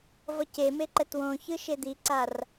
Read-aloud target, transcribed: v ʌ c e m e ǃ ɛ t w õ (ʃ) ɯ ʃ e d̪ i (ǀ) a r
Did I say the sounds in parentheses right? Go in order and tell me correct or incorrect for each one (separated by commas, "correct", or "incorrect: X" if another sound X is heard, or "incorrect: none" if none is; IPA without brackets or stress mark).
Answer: incorrect: ç, correct